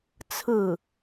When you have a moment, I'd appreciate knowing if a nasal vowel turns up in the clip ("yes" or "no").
no